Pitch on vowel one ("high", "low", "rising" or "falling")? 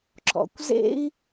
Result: low